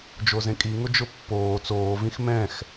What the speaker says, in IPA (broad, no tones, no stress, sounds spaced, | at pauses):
d͡ʒ o z ẽ kʼ i ŋ ʊ d͡ʒ ʊ pː oː t͡s oː v ĩ x m ɛ̃ x